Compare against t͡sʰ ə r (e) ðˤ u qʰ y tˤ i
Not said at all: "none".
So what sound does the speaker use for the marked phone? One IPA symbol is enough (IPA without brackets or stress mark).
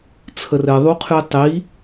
ɘ